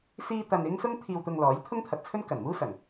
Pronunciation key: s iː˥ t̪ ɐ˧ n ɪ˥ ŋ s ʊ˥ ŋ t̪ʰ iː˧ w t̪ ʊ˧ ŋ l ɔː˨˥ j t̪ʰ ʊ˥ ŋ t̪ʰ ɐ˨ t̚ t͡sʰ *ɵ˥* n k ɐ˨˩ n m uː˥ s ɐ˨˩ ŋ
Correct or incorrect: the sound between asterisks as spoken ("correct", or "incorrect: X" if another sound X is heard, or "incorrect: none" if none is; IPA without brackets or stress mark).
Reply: correct